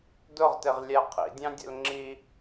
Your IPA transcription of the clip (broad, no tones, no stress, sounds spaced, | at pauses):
d ʊ ʁ t ɪ ʁ lʲ æ qʰ ḭ dʲ ɑ̃ dʲ ə̰ l ŋ͡ǁ i